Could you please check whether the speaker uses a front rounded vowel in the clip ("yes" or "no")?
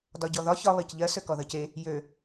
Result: yes